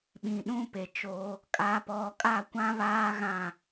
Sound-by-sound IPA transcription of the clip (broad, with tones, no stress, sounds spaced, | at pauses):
ɓ ĩ˨ ɗ ũ˦ p e˨ t͡ʃ oː˦ | kʼ a˨ p ɔ˨ kʼ a˦˨ kʷ ã˦ β aː˦ ɣ ã˦˨